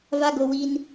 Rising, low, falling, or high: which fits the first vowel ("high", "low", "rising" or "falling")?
high